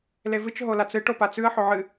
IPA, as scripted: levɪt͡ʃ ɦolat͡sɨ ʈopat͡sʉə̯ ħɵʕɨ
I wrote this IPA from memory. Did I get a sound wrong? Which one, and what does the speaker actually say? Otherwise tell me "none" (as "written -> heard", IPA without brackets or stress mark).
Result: ɪ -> ɨ